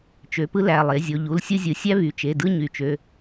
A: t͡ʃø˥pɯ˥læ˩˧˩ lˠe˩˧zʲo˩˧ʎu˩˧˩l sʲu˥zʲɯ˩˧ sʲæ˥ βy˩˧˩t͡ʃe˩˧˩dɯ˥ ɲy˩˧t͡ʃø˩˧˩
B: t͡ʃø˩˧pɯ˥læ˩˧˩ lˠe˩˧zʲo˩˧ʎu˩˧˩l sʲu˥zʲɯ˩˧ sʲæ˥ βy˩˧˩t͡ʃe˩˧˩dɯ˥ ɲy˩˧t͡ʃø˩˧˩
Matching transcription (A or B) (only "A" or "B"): B